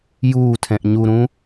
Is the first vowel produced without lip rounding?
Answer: no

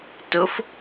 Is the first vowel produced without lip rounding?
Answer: no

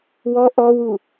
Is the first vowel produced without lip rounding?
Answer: no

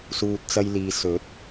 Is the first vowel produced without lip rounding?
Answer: no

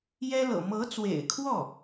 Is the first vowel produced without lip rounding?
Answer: yes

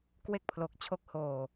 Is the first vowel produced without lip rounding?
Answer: yes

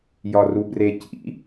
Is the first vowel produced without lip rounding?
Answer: no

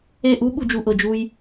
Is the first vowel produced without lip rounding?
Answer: yes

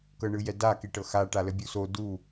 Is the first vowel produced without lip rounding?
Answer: yes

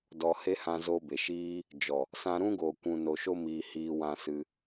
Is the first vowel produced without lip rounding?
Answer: no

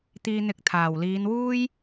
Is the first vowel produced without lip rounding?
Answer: yes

